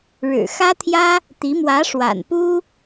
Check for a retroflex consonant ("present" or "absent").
present